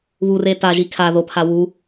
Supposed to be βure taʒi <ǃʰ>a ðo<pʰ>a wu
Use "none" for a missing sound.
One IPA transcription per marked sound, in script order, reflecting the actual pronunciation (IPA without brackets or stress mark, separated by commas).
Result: kʰ, pʰ